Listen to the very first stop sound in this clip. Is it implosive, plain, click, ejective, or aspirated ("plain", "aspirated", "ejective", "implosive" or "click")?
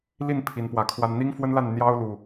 aspirated